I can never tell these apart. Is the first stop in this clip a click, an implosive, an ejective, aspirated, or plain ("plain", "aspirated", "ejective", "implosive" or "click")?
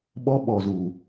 implosive